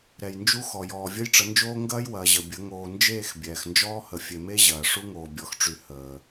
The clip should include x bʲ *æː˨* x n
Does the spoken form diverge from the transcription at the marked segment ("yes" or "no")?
yes